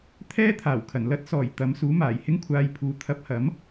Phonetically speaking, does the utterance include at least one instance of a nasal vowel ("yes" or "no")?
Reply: no